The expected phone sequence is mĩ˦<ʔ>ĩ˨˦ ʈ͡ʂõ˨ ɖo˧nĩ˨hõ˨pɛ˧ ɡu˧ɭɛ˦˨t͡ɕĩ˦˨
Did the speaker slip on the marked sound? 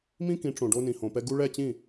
yes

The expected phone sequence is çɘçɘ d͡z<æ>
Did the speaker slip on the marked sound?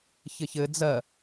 yes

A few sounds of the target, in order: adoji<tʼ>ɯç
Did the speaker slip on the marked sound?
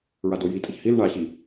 no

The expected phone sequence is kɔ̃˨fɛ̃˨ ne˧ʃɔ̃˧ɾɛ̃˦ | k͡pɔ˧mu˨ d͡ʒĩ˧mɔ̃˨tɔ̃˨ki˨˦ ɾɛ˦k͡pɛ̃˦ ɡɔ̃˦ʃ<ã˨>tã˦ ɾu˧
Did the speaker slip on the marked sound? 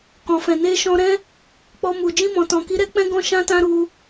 yes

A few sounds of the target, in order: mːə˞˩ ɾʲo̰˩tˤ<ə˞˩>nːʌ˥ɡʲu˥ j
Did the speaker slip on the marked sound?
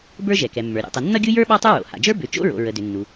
yes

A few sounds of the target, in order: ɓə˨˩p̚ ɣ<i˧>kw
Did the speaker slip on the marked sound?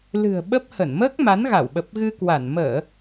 yes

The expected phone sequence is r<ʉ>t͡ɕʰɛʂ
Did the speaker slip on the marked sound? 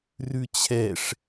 no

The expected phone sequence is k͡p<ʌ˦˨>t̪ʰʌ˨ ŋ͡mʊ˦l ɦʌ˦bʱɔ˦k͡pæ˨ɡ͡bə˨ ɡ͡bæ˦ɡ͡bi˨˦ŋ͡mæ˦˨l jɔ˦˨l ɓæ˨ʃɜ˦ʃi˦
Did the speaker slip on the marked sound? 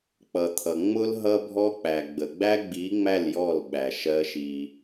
yes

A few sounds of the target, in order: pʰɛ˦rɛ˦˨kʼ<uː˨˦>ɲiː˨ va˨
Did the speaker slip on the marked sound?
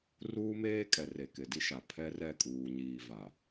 yes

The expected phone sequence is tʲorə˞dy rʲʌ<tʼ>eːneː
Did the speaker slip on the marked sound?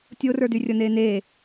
yes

